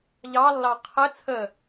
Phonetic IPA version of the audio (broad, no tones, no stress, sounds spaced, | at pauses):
ʎ ɑ lː ɑ qʰ ɘ t͡sʰ ə